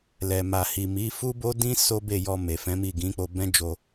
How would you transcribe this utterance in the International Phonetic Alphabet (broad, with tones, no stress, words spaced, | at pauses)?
lɛ˨ma˨hi˨mi˨˦ fu˦bo˦dĩ˦ so˦be˦˨jɔ˧ me˨fɛ̃˨˦mi˦˨ ɡĩ˨˦k͡po˧bɛ̃˦d͡ʒo˧